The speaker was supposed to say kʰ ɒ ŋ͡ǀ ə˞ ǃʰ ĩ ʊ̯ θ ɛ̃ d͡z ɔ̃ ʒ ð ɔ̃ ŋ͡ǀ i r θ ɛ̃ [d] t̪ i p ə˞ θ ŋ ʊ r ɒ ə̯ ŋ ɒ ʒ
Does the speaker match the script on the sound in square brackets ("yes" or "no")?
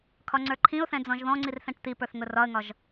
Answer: no